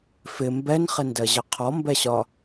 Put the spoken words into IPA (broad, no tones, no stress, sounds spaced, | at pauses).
f ɪ m b ɛ n χ ɪ n d ɜ ʑ ə qʰ ɔ m b ɛ ɕ ɒ